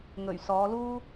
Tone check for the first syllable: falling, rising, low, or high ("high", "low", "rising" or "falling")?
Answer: low